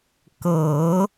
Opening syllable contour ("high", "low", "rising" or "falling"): low